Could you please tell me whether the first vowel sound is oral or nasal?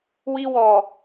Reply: oral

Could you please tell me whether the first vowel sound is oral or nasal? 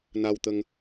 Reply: oral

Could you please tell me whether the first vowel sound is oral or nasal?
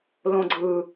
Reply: nasal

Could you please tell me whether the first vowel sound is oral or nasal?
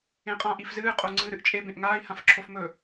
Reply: nasal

